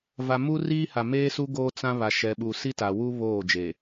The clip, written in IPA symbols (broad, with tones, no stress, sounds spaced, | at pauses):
v a˨ m u˦ r iː˦ h a˨ m eː˦ s u˦ ɡ oː˦ t͡s ã˦ β a˨ ʃ ɛ˨ ɓ u˨ s i˦ t a˨ w u˦ β oː˦˨ d͡ʒ e˨